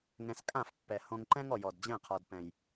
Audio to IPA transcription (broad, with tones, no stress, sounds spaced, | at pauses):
ŋ ɛ̃˧ s kʼ ã˦˨ f pː ɛ˨ h õ˧ ŋ ǃ ɛ̃˦ ŋ ɔ˨ j ɔ˨ d d͡ʑ ɛ̃˦˨ qʰ ɔ˨ d p ɛ̃˨ j